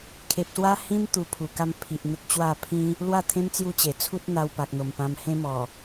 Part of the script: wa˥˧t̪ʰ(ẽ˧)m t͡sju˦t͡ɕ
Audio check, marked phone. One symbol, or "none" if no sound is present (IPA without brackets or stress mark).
ẽ˦